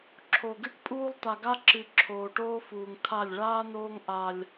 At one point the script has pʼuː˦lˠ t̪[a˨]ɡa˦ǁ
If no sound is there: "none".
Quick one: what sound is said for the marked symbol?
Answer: a˨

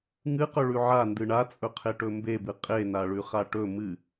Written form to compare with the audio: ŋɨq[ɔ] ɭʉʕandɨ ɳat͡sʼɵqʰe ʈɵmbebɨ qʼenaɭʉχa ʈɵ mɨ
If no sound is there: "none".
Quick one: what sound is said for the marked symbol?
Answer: ɵ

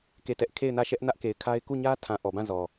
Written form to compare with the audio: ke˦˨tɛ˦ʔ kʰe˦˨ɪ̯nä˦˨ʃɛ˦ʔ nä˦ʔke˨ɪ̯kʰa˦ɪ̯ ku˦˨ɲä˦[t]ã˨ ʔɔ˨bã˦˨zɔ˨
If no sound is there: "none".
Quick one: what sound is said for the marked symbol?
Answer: tʰ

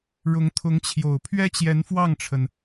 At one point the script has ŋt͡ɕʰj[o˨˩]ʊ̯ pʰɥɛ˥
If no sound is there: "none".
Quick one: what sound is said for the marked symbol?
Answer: o˨˩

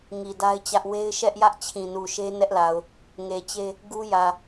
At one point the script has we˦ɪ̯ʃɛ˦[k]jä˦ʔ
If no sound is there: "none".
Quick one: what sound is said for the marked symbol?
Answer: ʔ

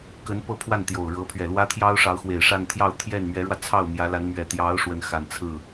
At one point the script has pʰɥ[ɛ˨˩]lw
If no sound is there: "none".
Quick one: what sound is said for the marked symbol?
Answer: ɛ˨˩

